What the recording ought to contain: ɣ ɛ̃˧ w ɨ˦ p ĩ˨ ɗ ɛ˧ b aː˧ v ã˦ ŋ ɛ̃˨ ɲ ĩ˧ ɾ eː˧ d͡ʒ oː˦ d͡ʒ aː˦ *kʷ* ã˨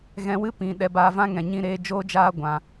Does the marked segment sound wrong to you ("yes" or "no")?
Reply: yes